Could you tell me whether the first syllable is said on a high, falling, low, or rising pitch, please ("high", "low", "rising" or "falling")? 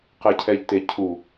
low